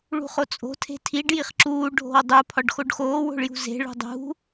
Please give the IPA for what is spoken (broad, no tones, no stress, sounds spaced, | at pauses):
ɭ ṳ χ o t͡sʼ o̤ tʰ e̤ tʰ i ɖ j i χ ǁ uː ɖʱ o̤ w dˤ u pʰ ɒ ɖ x o ɖ x oː w o̤ ɭ j ṳ z e̤ ɭ ṳ dˤ ṳ